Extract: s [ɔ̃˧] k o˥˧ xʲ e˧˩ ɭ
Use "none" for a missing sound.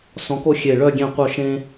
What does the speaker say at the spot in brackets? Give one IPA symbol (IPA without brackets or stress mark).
ɔ̃˧